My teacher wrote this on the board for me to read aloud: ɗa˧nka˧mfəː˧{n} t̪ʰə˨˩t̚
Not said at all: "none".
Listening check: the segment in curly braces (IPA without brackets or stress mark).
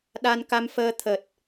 none